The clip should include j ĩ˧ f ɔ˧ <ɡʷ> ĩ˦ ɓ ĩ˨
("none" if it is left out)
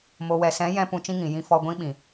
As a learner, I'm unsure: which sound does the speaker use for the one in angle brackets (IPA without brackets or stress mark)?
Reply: ɡʷ